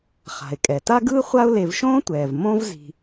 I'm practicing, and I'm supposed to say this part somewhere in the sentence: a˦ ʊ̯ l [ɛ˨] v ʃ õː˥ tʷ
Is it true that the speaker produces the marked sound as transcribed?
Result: no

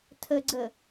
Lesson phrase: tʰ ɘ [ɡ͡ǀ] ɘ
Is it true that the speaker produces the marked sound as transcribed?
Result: yes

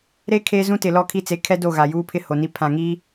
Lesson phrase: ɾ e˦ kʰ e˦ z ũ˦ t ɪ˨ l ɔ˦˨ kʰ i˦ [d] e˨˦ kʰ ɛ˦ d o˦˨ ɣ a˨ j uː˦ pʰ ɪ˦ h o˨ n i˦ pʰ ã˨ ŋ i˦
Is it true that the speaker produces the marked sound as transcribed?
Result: no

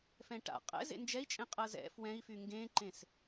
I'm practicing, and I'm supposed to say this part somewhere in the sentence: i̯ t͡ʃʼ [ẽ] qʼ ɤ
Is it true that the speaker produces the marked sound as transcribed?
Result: yes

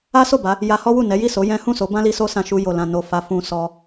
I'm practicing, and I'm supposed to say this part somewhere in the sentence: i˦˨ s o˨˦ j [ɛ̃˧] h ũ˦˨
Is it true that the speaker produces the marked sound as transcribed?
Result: no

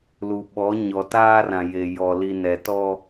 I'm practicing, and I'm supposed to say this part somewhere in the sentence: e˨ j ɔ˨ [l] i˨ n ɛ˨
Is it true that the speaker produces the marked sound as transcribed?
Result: yes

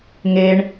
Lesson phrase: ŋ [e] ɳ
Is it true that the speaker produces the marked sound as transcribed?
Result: yes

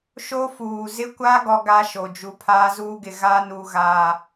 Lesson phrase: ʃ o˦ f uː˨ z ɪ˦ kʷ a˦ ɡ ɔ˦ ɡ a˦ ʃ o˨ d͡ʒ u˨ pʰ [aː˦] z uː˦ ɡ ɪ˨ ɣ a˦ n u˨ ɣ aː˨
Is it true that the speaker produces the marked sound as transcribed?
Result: yes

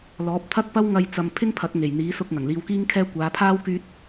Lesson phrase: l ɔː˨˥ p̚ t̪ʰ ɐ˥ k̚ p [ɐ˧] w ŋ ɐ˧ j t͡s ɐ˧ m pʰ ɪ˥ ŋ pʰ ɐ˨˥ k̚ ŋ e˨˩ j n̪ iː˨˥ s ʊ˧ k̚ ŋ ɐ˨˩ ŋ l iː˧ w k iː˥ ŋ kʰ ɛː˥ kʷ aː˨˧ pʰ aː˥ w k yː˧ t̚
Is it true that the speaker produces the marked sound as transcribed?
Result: no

